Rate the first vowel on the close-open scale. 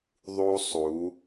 close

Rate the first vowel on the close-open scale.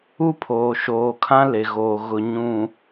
close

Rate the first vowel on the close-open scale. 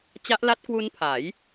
open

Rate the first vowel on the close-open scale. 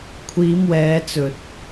close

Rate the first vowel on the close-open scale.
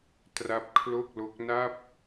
open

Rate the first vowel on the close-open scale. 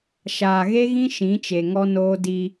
open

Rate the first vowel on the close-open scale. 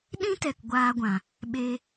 close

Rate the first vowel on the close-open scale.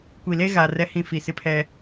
close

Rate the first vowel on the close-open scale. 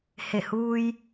mid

